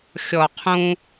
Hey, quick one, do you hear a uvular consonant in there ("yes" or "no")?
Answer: yes